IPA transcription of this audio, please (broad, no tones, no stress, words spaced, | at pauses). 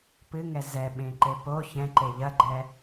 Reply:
pɨŋɛ zɛɓẽǃe po çɛ̃ǃe ʎɐɡ͡ǃɛ